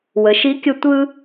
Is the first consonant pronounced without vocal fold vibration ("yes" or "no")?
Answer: no